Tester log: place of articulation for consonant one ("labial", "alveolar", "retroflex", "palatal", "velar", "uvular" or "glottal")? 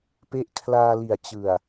labial